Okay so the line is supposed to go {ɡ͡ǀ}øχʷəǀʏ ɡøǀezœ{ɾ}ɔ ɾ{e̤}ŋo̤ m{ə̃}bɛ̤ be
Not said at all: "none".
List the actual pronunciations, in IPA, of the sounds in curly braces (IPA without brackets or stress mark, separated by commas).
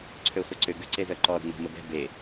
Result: ǀʰ, ǃ, ɛ̤, ə